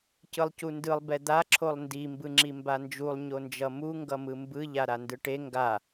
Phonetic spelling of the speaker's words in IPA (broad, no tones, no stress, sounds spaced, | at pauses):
c ɯ lˠ c u n d ɯ lˠ b ɛ d̪ a ǁʰ o lˠ n d i m b ɯ ŋ͡ǁ i m b a n d͡ʒ u lˠ ɲ o n d͡ʒ ʌ m u ŋ ɡ ʌ m ɯ m b ɯ ʎ a ɾ a n d ɯ ʈ e ŋ ɡ a